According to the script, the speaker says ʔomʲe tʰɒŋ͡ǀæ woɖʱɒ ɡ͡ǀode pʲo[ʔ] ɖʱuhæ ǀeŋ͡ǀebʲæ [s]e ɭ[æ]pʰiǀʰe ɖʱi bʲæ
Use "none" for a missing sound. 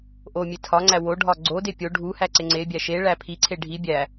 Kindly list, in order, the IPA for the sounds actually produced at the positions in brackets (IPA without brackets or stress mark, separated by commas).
none, ʃ, æ